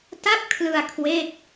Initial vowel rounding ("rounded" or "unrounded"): unrounded